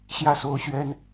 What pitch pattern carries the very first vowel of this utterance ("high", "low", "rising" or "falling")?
falling